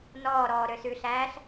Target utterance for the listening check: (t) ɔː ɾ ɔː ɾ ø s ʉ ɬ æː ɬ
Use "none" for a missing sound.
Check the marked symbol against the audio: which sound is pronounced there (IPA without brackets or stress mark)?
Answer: n